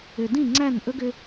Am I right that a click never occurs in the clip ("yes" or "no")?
no